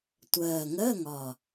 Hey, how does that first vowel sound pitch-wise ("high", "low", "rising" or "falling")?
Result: low